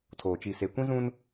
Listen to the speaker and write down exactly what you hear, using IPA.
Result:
tʰ oː˨ t͡ʃ i˨ s e˨ kʷ ĩ˦ z ũ˦ n

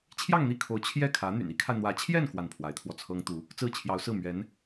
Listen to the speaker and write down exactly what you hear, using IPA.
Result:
t͡ɕʰ j ɑ˥˧ ŋ n̪ i˥˩ kʰ o˧˥ ʊ̯ t͡ɕʰ j ɛ˥˩ kʰ ä˧˥ n̪ y̰˨˩ n i˧˥ kʰ a˧ ɪ̯ n̪ w ä˧˥ t͡ɕʰ j ɛ˥˧ n k w a˥˩ n pʰ w a˧˥ ɪ̯ t̪ʰ w ɔ˧ t͡sʰ ɤ˥ ŋ t̪ u˧˥ | t͡s ɹ̩˥˩ t͡ɕʰ j ɑ˧˥ ʊ̯ s ɹ̩˥˩ m ɥ ɛ˧˥ n

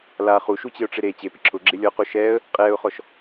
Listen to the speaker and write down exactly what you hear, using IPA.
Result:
l a χ u ʃ u t͡ɕ ɪ ʊ̯ ʈ͡ʂ ɪ ɾ e t͡ɕ e p ɪ ǁʰ ʊ ɡ͡ǁ ɪ lʲ ɔ q o ʃ ɛː ə̯ | qʼ ɛː ʊ̯ χ ɔ ʃ

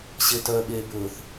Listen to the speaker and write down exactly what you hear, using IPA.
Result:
ɕ e t œ ɓ eː b ɵː θ

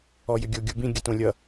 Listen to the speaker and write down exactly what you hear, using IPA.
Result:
ɔ j ʏ ɡʲ o ɡʲ u b ĩ ɡʲ ə t õ lʲ ʌ

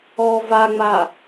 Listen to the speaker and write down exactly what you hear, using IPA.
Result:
ɔ v a ŋ͡m a

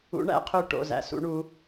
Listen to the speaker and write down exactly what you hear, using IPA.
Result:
ṵ˧˥ ɳ æ̰˧˥ qʰ ø˦˨ ʈ o̰˩˧˩ z æ̰˩˧˩ s ṵ˧˥ ɳ u˧˥

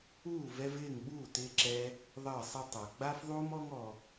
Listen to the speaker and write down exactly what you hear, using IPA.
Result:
uː˦˨ v ɛ˧ v ɪː˦˨ ŋ ɓ uː˦˨ t ɪː˧ ǁ ɛ˧ | ðˤ əː˦˨ sˤ ɛ˦ tˤ a˨ ɡ͡b a˦ f ðˤ uː˦ m ɔ˦ ŋ ɔ˧

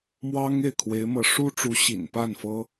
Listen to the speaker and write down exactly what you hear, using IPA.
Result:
m w ɑ˥ ŋ e˥˩ ɪ̯ kʰ w e˧˥ ɪ̯ m ɤ˧˥ ʂ u˥ ʈ͡ʂ u˧˥ ɕ ḭ˨˩ n p a˥˩ n f ɤ˥

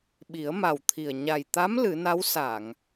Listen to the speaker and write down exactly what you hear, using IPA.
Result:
ɓ i˨˩˦ ə̯ m a˨˩ w t̪ʰ i˨˩ ə̯ ɲ a˨˩ j t̪ a˧˥ m l ɨ˨˩˦ n a˧˥ w s a˨˩˨ ŋ

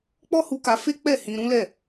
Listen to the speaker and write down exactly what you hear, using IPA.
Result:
k͡p ɔ˦ h u˧ k a˧ f e˦ k͡p ɛ˦˨ h ĩ˧ ɾ ũ˦ l ɛ˦˨

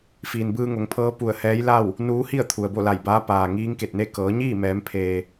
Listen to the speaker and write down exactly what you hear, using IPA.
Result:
f iː˩ n b ɯː˧ ŋ o˩˧ ŋ pʰ ɤː˧˥ p u˧˩ ə̯ h ɛː˧˥ j l a˥˨ w | n uː˧˥ h i˥˨ ə̯ t̪ʰ u˩ ə̯ b o˥˨ l a˧˩ j b aː˧˥ p aː˩ ŋ iː˧˥ ŋ k e˧˩ t̚ n e˥˨ k ɤː˩˧ ɲ iː˥˨ m ɛː˩˧ m pʰ eː˩

